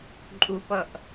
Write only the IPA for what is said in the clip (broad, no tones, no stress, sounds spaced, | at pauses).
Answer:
ǃʼ u p ʌ ʔ